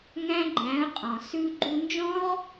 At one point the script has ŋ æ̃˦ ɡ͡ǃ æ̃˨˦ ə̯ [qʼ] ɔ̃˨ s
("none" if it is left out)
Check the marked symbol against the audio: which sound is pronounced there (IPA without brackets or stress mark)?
qʼ